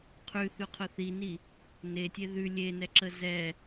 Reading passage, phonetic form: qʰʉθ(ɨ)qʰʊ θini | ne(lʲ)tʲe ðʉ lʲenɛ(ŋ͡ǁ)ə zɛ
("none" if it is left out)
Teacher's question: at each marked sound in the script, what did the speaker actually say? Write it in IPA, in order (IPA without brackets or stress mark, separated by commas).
ʉ, none, ǁ